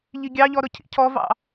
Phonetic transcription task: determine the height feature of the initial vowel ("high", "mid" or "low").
high